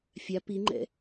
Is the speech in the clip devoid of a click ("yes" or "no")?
no